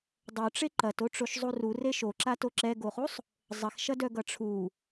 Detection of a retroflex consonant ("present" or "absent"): present